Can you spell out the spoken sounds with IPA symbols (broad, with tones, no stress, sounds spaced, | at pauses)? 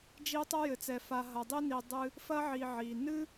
d͡ʒ i˦ tˤ ɐ˥ j ɘ˨ t͡s ɛ˨ f a˨ ɦ ɐ˨ dˤ i˦ n i˨ dˤ ɨ˦ | f ɐ˥ ʕ i˨ ʕ i˩ n ɨ˥